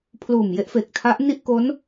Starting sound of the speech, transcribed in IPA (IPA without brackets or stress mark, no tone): pʰ